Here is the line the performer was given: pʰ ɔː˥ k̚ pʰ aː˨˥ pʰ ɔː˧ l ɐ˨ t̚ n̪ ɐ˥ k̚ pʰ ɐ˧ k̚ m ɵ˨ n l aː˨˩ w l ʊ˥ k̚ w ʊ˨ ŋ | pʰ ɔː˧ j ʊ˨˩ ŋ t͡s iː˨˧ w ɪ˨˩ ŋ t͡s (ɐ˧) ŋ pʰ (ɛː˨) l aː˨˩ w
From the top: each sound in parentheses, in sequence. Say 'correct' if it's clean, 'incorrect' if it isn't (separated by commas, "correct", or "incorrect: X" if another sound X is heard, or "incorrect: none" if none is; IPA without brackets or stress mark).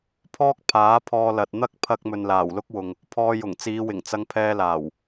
correct, incorrect: ɛː˧